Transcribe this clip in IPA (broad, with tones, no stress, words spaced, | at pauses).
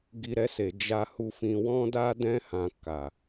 ɡi˧ɾɛ˧se˨ d͡ʒa˨hu˨fĩ˨ wɔ̃˧da˧dɛ̃˧hã˨ ka˨